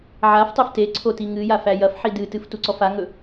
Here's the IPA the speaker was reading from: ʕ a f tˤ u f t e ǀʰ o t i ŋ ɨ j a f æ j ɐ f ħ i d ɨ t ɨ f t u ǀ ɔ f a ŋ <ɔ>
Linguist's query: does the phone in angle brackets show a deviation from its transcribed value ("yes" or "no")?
yes